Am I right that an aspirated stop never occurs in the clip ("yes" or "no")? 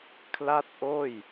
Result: no